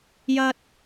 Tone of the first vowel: high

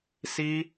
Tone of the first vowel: high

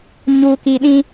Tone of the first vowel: low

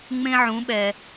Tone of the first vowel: high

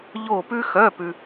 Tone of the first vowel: falling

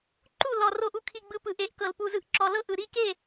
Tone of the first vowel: falling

